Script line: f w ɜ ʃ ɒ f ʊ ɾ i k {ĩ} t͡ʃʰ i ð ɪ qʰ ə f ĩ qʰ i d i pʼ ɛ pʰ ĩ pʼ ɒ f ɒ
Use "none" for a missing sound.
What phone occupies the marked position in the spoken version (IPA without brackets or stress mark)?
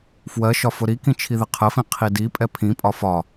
ĩ